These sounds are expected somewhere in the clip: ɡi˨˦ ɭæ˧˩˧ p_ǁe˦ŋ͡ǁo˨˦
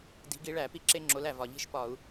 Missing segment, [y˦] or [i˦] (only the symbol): i˦